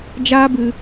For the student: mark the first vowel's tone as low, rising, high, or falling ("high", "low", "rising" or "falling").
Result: high